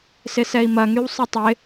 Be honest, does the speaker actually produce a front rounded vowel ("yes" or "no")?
yes